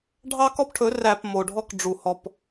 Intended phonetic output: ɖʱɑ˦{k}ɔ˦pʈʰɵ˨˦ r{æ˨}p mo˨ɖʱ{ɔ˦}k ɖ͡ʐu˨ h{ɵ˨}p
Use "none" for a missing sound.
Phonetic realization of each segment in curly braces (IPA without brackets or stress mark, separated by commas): k, æ˨, ɔ˦, ɔ˨